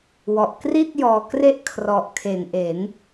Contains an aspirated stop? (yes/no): yes